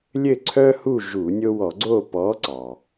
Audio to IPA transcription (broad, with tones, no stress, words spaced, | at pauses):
lʲɘ˦˨ǀʰœ˦hu˦˨ ʒu˧˩˧nʲo˦ wɔ˧˩˧ ɡ͡ǀo˦˨ pɔ˨˥ǀɑ˩